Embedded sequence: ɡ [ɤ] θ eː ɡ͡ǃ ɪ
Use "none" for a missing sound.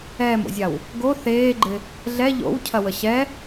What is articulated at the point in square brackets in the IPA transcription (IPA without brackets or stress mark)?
o